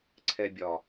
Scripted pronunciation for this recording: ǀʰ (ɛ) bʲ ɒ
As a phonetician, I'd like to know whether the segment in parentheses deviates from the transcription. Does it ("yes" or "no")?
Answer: no